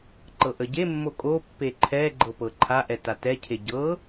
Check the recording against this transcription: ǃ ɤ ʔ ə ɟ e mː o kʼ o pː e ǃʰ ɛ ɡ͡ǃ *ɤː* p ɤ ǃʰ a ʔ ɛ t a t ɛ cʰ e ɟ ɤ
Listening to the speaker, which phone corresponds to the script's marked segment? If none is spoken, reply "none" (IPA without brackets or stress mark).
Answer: ɤ